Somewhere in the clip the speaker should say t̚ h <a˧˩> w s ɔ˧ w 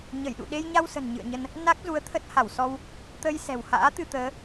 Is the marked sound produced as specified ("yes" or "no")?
yes